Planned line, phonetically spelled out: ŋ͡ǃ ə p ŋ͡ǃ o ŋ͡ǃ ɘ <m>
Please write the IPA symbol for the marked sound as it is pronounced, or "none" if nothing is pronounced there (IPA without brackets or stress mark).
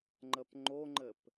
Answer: p